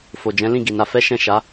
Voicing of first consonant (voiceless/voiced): voiceless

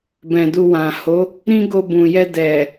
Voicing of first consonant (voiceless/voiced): voiced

